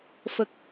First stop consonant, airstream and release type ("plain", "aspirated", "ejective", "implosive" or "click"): plain